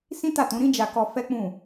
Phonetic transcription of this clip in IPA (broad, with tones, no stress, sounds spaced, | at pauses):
s ĩ˦ t a˦˨ t ũ˨˦ ɾ ĩ˦ d͡ʒ a˧ k ɔ˧ f ɛ˦ k͡p ũ˦˨